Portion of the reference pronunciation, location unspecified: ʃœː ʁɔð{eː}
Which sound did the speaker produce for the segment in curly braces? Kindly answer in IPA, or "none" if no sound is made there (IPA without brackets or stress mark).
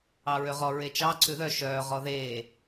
eː